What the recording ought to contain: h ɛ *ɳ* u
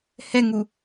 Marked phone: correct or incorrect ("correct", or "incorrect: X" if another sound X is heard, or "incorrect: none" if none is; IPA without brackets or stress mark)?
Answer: incorrect: ŋ